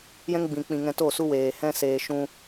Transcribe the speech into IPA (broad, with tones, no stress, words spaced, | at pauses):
jɛ̃˦ŋ ɡ͡bĩ˨k͡pĩ˨ ŋɛ̃˧to˦˨su˦weː˨ hɛ̃˧seː˨ ʃũ˧